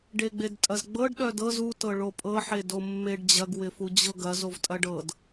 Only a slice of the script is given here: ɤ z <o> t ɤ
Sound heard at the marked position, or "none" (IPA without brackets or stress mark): u